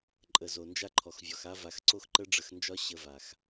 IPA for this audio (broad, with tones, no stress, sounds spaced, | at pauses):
ǃʼ ə˨ z o˨ n d͡ʒ a˦ ǃʰ ɔ˨ x vʲ ɔ˨ x a˦ v a˧ x ǀ o˦ x ǃ ə˦ ɖ͡ʐ ə˧ x n d͡ʒ ɒ˦ ɕ ə˧ v a˨ x